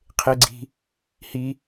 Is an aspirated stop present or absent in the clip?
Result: present